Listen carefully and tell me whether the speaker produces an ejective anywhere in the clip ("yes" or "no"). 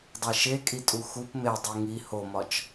yes